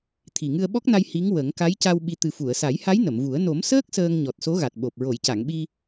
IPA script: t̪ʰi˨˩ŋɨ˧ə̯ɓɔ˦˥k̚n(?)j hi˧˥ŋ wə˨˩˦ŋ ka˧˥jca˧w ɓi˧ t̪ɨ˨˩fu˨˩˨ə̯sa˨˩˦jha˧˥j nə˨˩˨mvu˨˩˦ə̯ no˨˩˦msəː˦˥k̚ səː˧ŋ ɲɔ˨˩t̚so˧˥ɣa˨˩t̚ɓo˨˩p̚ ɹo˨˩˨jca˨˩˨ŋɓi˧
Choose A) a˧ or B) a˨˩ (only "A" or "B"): A